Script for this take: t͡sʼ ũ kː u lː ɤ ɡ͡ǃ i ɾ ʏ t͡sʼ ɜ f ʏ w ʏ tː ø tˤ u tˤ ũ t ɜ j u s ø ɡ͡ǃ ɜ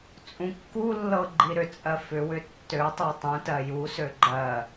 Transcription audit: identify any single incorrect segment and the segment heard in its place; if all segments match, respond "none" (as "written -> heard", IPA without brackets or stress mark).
none